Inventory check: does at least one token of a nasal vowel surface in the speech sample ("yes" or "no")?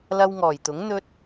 no